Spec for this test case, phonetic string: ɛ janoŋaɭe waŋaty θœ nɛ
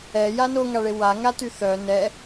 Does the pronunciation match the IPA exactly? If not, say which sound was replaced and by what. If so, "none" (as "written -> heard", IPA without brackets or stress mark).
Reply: none